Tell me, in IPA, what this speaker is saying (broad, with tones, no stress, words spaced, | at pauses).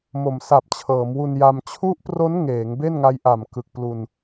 mo˩˦msa˨˩p̚t͡ɕʰɤː˩˦m wu˧nja˧m t͡ɕʰu˦˥ʔpro˦˥n ŋeː˩˦ŋ be˥˩nŋa˦˥jʔa˨˩m kɯ˨˩k̚ plu˧n